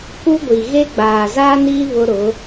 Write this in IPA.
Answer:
k u˦ ɡʷ i˨ ɣ e˦ ɡ͡b aː˨ z aː˦ n iː˦ β ʊ˦ ɾ ʊ˨˦

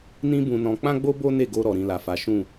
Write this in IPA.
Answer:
n ĩ˦ b ũ˧ n ɔ̃˧ k͡p ã˦ ɡ͡b o˦ b o˦ n e˦˨ ɡ o˧ ɾ ɔ˨ ɾ ĩ˧ l a˨ f a˨˦ ʃ ũ˦˨

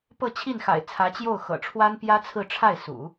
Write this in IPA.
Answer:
p ɤ˥˧ t͡ɕʰ i˥˩ n x a̰˨˩ ɪ̯ t͡sʰ ä˧˥ t͡ɕ j o˥˩ ʊ̯ x ɤ̰˨˩ ʈ͡ʂʰ w a˥ n p j ä˥ t͡sʰ ɹ̩˥˧ ʈ͡ʂʰ a˥˩ ɪ̯ s ṵ˨˩˦

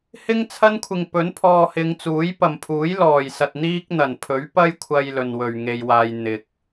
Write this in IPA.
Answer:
h ɪ˥ ŋ t͡sʰ ɐ˥ n kʷʰ ɪ˨ ŋ p ɵ˨˥ n pʰ ɔː˧ h ɪ˨˧ ŋ t͡s uː˨˥ j p ɐ˨ m pʰ uː˨˥ j l ɔː˨˩ j s ɐ˨ t̚ n̪ iː˥ k̚ n̪ ɐ˨˩ n pʰ ɵ˨˥ ɥ p ɐ˥ j kʷʰ ɐ˧ j l ɵ˨ n w ɵ˨ ɥ ŋ e˧ j w aː˧ j n̪ ɪ˨ k̚

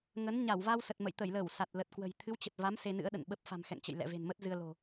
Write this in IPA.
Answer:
ŋ ə˨˦ n ɲ a˧˩ w v a˧ w s ə˨˩ t̚ m ə̰˧˨ j t̪ ə˧˩ j l ə˧˩ w s a˨˩ t̚ l ə˨˩ t̚ k w ə̤˨˩ j t̪ʰ ɨ˨˦ w t͡ɕ ə˨˩ t̚ v a˨˦ m s e˧ n ɨ̰˧˥ ə̯ ɗ ə̰˧˨ n ɓ ə˦˥ p̚ f a̤˨˩ m x ɛ̰˧˨ ŋ t͡ɕ ə̰˧˨ j l ɛ̰˧˨ v e̤˨˩ n m ə˦˥ t̚ z ɨ˧ ə̯ l o̤˨˩

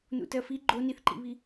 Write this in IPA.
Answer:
n ṵ t ɜ f i ɡ͡ǃ o n i θ ǃ ḭ β i

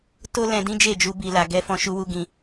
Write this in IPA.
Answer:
t o˦ l ɛ̃˧ d ĩ˦ d͡ʒ e˦˨ d͡ʒ u˧ b i˨ l a˨ ɡ ɛ˨˦ f ɔ̃˧ ʃ u˧ w u˧ ɡ ĩ˧

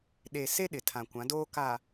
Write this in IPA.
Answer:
ɗ e˨ s e˦ ɗ ɪ˨ tʰ ã˨ kʷ ã˨˦ d oː˦ k a˨

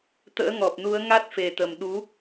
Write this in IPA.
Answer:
t̪ ə̰ː˧˥ ŋ ɔ˨˩ p̚ n u˨˦ ə̯ ŋ a˦˥ t̚ f e˨˩ t̪ ə˨˩ m ɗ u˨˦

